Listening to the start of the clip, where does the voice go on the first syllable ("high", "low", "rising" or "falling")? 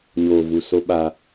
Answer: low